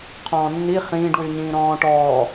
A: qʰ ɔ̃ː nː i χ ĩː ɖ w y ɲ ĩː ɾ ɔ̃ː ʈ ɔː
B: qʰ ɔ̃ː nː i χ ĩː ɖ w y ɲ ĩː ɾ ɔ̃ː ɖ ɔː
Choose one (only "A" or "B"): A